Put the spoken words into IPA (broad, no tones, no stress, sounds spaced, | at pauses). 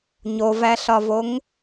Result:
ɲ o v æ ɬ ɒ v o ŋ